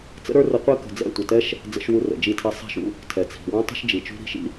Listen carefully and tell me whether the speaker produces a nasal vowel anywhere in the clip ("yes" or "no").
yes